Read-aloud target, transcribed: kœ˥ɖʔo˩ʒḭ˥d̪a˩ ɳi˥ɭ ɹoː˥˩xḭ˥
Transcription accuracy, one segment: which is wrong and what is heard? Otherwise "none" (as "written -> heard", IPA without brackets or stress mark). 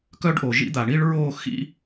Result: none